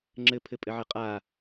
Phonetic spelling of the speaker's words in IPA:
ŋ͡ǁɘpʰɘpʼɘʕɘ qʼa

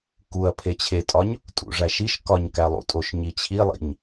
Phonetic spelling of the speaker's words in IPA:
kuɐ̯ pʰet͡ɕʰetʼɒɲ | tʼṵʐæʃiʃ kɒɲkælˠṵtʼoʃ ɲit͡ɕʰilˠḭɲ

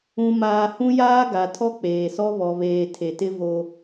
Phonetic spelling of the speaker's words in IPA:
ũ˨maː˨ hũ˦jaː˦ ɡa˨ tʰɔ˦k͡peː˨sɔ˦ βɔ˨βeː˨ tʰe˨tɪ˦ vo˦

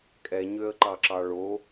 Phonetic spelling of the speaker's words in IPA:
kʼɛɲøə̯ ǃɑǁɑɭo

